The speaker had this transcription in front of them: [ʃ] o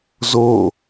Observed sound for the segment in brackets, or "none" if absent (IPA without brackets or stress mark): z